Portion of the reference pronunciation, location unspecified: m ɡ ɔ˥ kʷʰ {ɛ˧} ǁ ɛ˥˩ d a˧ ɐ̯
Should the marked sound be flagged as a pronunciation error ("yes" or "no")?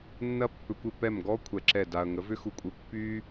no